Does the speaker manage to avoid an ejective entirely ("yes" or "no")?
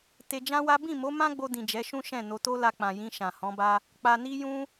yes